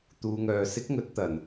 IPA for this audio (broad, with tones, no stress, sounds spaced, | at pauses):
t̪ uː˨ ŋ œː˨ s ɪ˨˥ k̚ ŋ ɵ˨˥ t̚ t̪ ɐ˨˩ n